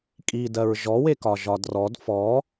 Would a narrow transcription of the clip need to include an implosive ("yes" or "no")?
no